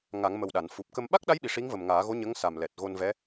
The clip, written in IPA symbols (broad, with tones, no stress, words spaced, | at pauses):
ŋa˨˩˦ŋmə˨˩w ɗa˨˩˨n fu˨˩p̚kə˧m ɓa˦˥k̚ɗa˧˥jɓi˨˩ ʂi˧˥ŋvə˨˩mŋaː˨˩˦ɣo˧˥ ɲə˧˥ŋsa˨˩m lɛ˨˩t̚ɣo˧nvɛ˧˥